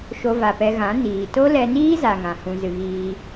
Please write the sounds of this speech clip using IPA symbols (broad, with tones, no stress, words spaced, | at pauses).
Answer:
ʃo˧va˨pɛ˧ɣã˨˦ niː˨ to˦lɛ˧niː˦za˨ ŋã˨hũ˧zɨ˧ ɣiː˧